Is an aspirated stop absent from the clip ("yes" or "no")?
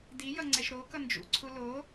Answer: no